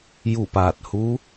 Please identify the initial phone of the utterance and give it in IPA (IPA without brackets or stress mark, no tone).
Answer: j